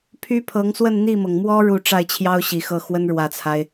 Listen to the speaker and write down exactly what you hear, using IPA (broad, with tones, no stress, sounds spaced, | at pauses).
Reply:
pʰ y˥ pʰ ɤ˧˥ ŋ s w ə˥˧ n n̪ i˥˩ m ɤ˩ ŋ m w ɔ˥ ɻ u˥˧ ʈ͡ʂ a˥˩ ɪ̯ t͡ɕʰ j ɑ˥ ʊ̯ ɕ i˨˩ x ɤ˥˩ x w ə˥ n ɻ w ä˨˩ t͡sʰ a˦ ɪ̯